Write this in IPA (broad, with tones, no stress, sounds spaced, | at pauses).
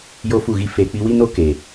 j o˦ f u˦˨ ɣ i˦ f eː˨ k͡p i˧ w i˦ n o˦ k eː˨